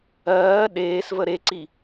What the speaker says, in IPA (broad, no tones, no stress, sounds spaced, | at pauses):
ɜː ɗ eː s v ə ɾ e ǀ i